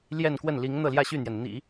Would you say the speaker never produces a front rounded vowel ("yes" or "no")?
no